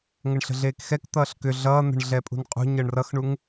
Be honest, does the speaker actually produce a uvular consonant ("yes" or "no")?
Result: yes